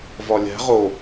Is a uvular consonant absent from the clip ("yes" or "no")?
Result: no